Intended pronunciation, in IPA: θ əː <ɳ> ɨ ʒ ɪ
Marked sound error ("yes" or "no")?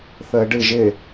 yes